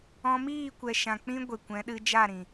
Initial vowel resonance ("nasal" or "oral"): nasal